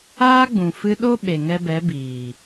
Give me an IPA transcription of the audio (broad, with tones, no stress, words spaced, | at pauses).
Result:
aː˦ɡ͡bũ˨ fɨ˧ɗo˦ ɓe˨ŋɛ˧bɛ˨˦biː˨